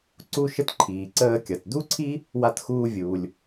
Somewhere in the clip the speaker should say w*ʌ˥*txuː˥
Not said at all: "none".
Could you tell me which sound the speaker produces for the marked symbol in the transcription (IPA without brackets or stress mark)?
a˥